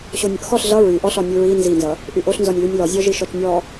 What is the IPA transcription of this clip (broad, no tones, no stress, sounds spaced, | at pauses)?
ɕ o nʲ ʌ ʔ x ɔ ɬ ɮ ʌ ɹ y ʔ ɔ ɬ ɔ nʲ u ɹ i n z i n z ʌ | ʔ y ʔ o ɬ n z ɔ nʲ l y nʲ l ɔ zʲ ɔ ʒ i ʃ ɔ t͡ʃ nʲ ɔ